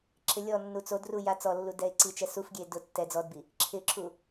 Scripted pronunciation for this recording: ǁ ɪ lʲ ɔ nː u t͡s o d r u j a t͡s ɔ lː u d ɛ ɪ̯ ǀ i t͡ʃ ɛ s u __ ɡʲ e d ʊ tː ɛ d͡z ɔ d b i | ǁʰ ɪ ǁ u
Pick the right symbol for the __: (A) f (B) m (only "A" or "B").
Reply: A